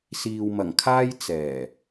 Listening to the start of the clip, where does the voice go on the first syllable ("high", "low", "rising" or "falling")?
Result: low